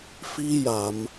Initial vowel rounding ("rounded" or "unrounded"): unrounded